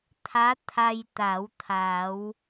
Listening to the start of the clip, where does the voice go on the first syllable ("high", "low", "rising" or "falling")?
rising